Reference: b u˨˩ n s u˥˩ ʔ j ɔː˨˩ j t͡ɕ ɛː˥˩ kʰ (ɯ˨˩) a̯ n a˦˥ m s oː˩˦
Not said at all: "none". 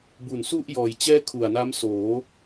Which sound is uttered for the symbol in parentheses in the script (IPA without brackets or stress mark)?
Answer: u˨˩